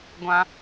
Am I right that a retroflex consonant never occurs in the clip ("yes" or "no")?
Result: yes